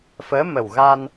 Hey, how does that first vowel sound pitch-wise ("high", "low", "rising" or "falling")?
rising